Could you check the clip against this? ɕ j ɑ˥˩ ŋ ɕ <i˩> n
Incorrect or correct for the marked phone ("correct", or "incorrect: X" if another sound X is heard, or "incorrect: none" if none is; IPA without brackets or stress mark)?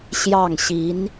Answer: incorrect: i˧˥